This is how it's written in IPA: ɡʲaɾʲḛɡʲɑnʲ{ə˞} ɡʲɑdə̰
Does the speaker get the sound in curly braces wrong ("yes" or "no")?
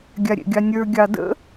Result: no